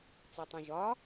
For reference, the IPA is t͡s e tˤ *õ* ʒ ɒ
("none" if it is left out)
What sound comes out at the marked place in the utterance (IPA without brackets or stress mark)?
õ